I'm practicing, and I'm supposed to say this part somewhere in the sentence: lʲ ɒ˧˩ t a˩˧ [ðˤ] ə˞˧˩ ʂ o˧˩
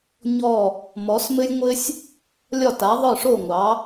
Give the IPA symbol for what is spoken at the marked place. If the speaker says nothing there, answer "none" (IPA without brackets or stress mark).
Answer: ðˤ